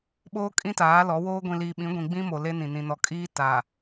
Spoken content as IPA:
ɓoː˦kʼĩ˦taː˨˦ lɔ˨˦woː˦ ɡʷĩ˨liː˨ɓĩ˨˦ ɡʷĩ˨ɡ͡bĩ˦mo˨ le˦nĩ˨ nĩ˨nɔ˨kʼiː˦ taː˨

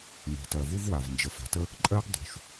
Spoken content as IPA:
ŋe̤˨tɜ˨vu˦vwa˨v nd͡ʒə˨fa̤˨tə˦ | ǃʼɜ˦ɡdˤṳ˨ʃ

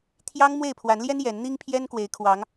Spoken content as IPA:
t̪ʰjɑ˦ŋ mwe˥˨ɪ̯pʰwa˨˦nljɛ˦n jɛ˨˦n n̪i˦ŋpʰjɛ˦n kwe˨˦ɪ̯ kʰwɑ˨˦ŋ

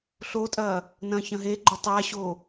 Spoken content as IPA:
ɬotʼɐː | nɐ̃ːçɐ̃ɦeɡ͡ǃɵ tˤaɕo

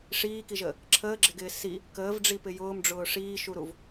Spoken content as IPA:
ʂiːkiʒəː | ǁʰəːɡ͡ǁɪɡɪː si | kəːvɖ͡ʐipɪ jʊːmɖ͡ʐʊː ʂiːʃuɾuv

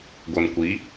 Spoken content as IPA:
ɡʷɤnkʷi

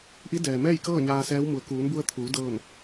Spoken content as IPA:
ʔi˧˥dɛː˩mɛː˥˨jkɤː˥˨ ɲaː˧sɛː˧˥w mu˩˧ə̯ kuː˩˧nbu˧ə̯t̪ʰuː˩˧ dɤː˥˨n

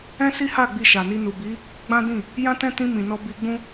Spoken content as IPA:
ɛ̃˦si˦ha˦˨ ɡ͡bi˧ʃa˨ni˧ nu˨bi˨˦ | ɡ͡bã˦ dĩ˦˨ | jã˦ tɛ̃˦tĩ˧ mĩ˨nɔ˧bi˧ɡ͡bũ˦

